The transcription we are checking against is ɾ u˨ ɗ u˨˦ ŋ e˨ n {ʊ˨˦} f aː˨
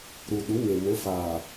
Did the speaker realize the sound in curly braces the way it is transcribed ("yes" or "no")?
yes